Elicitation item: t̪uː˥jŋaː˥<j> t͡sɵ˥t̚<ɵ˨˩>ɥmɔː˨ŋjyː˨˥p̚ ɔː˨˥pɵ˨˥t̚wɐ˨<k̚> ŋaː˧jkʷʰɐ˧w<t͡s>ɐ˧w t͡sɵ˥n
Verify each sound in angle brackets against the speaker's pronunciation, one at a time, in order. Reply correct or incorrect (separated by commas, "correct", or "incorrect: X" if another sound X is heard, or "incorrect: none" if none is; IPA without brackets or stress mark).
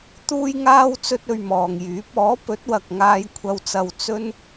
incorrect: w, incorrect: ɵ˧, correct, correct